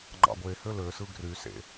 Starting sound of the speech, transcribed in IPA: ŋ͡ǃ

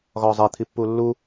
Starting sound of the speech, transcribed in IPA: ɣ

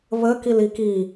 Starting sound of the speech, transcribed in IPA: β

